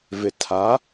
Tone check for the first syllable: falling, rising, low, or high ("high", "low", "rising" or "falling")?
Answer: low